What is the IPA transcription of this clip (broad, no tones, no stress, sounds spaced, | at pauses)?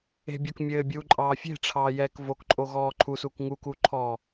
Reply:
e̤ bʲ o k mʲ ɘː bʲ uː ǃʼ ɑː fʲ e̤ ʈ͡ʂʰ ɑː j ɛː k v o k ǃʼ o ɣ ɔː ǃʰ u s u k ŋ u k uː ǃʰ ɔː